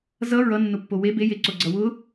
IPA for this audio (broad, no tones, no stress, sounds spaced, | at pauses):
z ʌ ɹ ʌ nː ʊ pː o w e b e j e ǀ o ɡ͡ǀ ʌ w ʊ